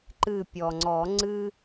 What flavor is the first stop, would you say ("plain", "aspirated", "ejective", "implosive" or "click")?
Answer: click